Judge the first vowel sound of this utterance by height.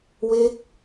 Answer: mid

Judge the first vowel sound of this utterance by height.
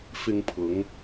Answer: high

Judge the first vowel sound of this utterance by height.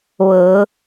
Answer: mid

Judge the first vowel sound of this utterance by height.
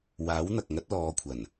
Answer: low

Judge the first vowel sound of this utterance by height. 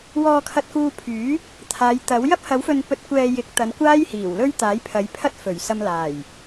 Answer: mid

